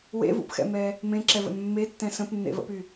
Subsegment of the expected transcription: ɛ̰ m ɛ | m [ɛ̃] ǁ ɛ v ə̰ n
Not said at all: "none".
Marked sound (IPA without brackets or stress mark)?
ẽ